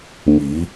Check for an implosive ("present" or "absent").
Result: absent